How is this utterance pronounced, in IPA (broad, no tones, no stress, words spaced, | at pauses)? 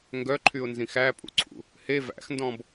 ŋɡœǃʰyʊ̯nzĩx æpʼṵǀʰṵ | he væ̰xndɔ̃b